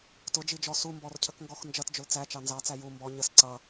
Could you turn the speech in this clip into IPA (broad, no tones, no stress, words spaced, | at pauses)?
tʊd͡ʒid͡ʒɔ sumbɔrcʰəkŋɡɔx nd͡ʒʌtd͡ʒʊl t͡sæt͡ʃɑ nzɑt͡sæ ju mbɔ ɲəs ǀʌ